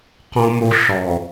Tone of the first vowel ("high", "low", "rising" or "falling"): high